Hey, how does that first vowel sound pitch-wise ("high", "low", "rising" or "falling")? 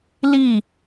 falling